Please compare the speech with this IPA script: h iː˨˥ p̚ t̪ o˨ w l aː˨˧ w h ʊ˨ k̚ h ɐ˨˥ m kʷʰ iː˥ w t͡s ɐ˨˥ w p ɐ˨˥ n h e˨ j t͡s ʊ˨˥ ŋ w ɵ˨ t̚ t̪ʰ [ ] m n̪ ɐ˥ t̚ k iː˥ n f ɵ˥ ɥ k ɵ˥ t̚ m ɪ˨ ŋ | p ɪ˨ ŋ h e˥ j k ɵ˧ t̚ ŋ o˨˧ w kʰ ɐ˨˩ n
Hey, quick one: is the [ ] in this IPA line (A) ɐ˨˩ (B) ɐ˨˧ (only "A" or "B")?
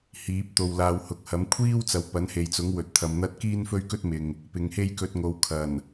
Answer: B